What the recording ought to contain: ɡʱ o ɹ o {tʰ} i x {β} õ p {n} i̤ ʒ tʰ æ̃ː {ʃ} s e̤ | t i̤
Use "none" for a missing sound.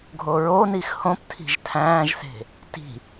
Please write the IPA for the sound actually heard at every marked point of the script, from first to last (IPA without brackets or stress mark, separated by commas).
n, h, tʰ, ʒ